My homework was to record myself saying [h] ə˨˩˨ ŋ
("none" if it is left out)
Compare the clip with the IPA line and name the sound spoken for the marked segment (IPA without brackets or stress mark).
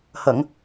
h